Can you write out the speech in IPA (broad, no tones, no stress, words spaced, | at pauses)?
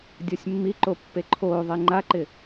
dʲɔsʲmːiǃo pːeǃʰoːðˤe ŋ͡ǃaǃɪ